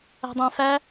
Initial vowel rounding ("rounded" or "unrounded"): unrounded